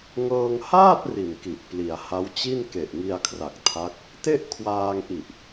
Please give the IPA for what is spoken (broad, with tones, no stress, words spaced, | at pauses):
ŋɤː˧ŋ haː˥˩t̚ ri˨˩nki˨˩ʔ pli˩˦a̯ha˦˥wt͡ɕi˥˩n ke˨˩ʔŋi˧a̯kʰra˨˩k̚ tʰa˦˥k̚ | te˥˩ʔkʰwaː˧ŋʔi˨˩ʔ